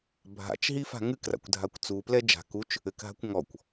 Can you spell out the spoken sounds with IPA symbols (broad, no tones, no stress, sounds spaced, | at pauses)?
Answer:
bʱ a̰ t͡ʃ ɦ i f a̤ ŋ ɨ k r a̰ kʷ dʱ a kʷ t͡s u p l ɛ d͡ʒ a̤ k u t͡ʃ | ɘ k ɦ a̤ kʷ ŋ ɔ kʷ